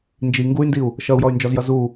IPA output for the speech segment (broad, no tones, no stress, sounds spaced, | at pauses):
n d͡ʒ i ŋ ɡ u y̯ n d i u̯ | ʃ ʌ u̯ j ɔ y̯ n d͡ʒ ɔ z j ʌ z u